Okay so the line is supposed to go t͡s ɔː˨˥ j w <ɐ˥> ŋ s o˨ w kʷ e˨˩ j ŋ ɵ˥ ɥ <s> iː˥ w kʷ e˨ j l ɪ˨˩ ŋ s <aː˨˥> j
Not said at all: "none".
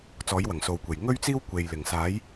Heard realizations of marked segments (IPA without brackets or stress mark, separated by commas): ɐ˨˩, t͡s, aː˨˥